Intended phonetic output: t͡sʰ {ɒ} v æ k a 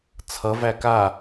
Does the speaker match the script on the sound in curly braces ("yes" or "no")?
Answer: no